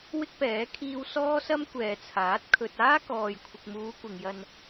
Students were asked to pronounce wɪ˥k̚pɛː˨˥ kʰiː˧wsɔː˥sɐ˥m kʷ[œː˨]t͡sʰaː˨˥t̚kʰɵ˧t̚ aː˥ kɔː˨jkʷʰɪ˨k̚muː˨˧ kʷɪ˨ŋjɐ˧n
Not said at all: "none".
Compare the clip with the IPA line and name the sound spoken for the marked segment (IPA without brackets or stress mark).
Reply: ɛː˨